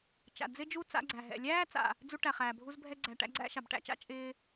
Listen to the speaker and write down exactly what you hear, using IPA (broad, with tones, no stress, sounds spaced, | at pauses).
t͡ʃ a̰˩ d͡z ɪ˥ d͡ʒ u˥ t͡s a̰˥ ɡ͡ǀ æ˩ ɦ ɛ̰˩ lʲ æː˥ t͡s a̰˩ | d͡z u˥ ʈ æ˩ χ æː˩ bʱ u˥ z bʱ ɛ˥ ɡ͡ǀ æ˩ ʈ æ̰˥ ɡ͡ǀ æ̰˥ ʃ a˩ b ʈ æ̰˥ t͡ʃ a̰˥ t͡ʃʼ ɪː˥